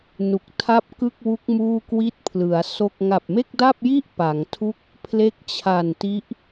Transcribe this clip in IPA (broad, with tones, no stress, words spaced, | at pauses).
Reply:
nu˨˩k̚tʰa˥˩p̚ kɯ˥˩k̚wu˦˥k̚ muː˥˩kwi˥˩t̚pʰlɯ˩˦a̯so˥˩k̚ ŋa˨˩p̚me˥˩k̚da˥˩p̚ji˥˩ʔ pa˩˦ŋtʰu˥˩k̚ | pʰle˦˥k̚t͡ɕʰa˨˩nti˦˥ʔ